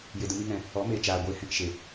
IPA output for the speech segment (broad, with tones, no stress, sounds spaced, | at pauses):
j e˧ d ə˦ m i˦ ŋ ɛ̃˧ | ɔ˨˦ m eː˨ t͡ʃ aː˨ ɡʷ eː˧ h ɛ̃˧ k ʃ e˨